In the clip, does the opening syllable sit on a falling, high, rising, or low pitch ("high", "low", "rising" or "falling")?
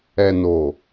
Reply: low